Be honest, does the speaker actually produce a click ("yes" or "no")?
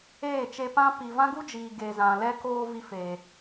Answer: no